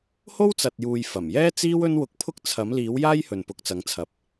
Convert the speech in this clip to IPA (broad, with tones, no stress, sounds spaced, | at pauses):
h o˥ w t͡s ɐ˨ t̚ j uː˨ j f ɐ˨˩ m j ɛː˥ t͡s iː˥ w ɵ˥ n w ʊ˧ k̚ pʰ ʊ˥ k̚ t͡sʰ ɐ˨˥ m l iː˨˥ w j aː˥ j h ɵ˨ n p ʊ˨˥ k̚ t͡s ɐ˨˥ ŋ t͡sʰ ɐ˨ p̚